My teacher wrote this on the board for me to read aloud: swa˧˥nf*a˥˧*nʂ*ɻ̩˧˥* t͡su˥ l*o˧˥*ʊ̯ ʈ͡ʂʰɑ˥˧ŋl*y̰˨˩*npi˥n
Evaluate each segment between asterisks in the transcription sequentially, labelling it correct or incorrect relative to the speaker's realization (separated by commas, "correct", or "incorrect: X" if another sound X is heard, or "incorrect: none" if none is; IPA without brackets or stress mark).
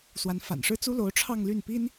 incorrect: a̰˨˩, incorrect: ɻ̩˥, correct, incorrect: y˥˩